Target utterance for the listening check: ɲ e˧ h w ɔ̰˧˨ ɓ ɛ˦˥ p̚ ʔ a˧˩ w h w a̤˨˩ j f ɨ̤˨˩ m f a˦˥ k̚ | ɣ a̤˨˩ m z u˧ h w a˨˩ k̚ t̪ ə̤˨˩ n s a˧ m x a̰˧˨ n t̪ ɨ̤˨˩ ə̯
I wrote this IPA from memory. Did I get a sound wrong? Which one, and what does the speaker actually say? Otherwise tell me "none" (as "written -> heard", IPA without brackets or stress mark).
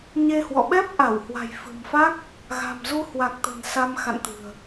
none